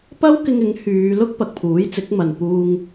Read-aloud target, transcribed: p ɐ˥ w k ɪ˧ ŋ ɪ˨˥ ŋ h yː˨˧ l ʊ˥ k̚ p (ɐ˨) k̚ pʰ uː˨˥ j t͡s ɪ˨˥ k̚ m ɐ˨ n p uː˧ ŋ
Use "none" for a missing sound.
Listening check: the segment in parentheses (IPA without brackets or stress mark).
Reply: ɐ˨